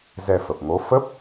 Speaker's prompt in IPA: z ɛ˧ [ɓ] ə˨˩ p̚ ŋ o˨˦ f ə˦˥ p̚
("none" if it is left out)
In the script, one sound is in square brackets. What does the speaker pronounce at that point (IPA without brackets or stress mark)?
f